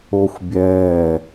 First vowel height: mid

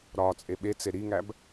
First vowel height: low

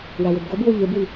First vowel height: low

